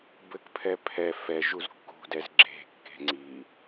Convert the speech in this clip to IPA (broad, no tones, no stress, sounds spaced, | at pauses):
b ɘ k pʰ ɛ pʰ ɛ f ɛ ʒ u z kː ṳ d ɛ z ɡ͡ǁ e̤ kː e̤ ŋ͡ǀ i